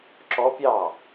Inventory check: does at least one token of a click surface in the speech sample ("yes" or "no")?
yes